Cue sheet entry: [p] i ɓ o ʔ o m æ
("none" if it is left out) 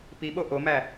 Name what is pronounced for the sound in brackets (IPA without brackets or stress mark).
p